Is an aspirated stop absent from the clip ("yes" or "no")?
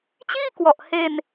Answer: yes